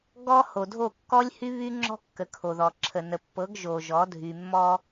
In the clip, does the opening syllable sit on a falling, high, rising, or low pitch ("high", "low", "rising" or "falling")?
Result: high